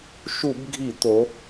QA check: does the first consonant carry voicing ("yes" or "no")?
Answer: no